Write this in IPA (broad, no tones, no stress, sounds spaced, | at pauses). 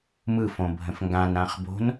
m ɯ f õ bʱ ə̃ f ŋ ɡ ã n ã χ b o̤ n